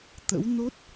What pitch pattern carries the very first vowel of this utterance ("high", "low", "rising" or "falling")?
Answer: rising